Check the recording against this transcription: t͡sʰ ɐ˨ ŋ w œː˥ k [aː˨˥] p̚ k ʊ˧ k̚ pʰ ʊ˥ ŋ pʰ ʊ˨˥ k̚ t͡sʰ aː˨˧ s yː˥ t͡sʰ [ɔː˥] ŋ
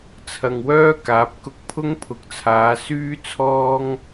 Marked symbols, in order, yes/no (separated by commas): yes, yes